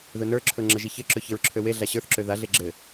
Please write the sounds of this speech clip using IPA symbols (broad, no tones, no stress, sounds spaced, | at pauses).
ð ɵ n ə˞ ǁʰ ɵ ŋ͡ǁ ə ʒ i ç ɘ ǁ ɵ ç ɘ ɹ ǁʰ ø w e ɮ a ɕ ə˞ θ ǁ ø ð a ɮ e ɡ͡ǁ ɘ